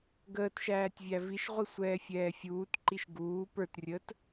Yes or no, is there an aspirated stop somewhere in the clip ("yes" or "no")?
no